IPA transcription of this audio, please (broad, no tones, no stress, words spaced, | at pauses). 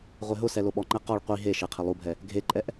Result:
ʁʷeɦʊsɛ loɓɔŋ͡ǃɛ qɔɭ qʷi ɦe ʃeqʰɪlˠubʱɛ | ɡʱeǃʼɛʔ